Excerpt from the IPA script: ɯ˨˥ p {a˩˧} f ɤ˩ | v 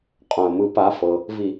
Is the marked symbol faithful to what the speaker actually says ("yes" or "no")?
no